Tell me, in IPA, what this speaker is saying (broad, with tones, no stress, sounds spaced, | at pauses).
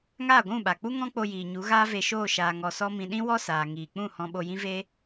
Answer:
ŋ aː˦˨ ɡʷ ũ˦˨ ɓ a˨ k͡p u˦ ŋ ɔ̃˦ k͡p o˧ j iː˨ ɲ u˨˦ ɣ aː˦ v e˧ ʃ oː˦˨ ʃ aː˧ ŋ ɔ˧ s ɔ˦ m ĩ˧ ɗ ĩ˦ w ɔ˦ s aː˨ ŋ iː˨ k͡p ũ˦˨ h ɔ̃˧ ɓ o˧ j ĩ˦ v e˦